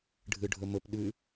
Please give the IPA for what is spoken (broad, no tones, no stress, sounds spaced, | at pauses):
ɖʱ ɨ ɖʱ ɵ m ɵ p ɗ ʉ